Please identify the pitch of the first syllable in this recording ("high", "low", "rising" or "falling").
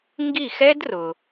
falling